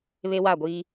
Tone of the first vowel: high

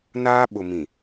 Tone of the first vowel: high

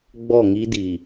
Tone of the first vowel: falling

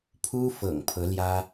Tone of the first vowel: high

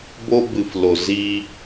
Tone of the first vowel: high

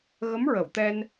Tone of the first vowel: rising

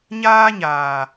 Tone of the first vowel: high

